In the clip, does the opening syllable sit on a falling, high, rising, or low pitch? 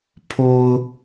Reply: low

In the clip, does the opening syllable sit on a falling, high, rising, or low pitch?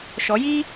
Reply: rising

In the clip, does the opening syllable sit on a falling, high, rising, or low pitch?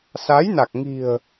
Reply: rising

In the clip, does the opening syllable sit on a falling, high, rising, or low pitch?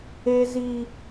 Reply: high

